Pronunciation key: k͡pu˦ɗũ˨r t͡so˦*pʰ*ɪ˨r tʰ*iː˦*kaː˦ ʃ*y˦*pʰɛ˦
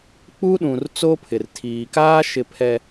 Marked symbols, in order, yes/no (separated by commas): yes, no, no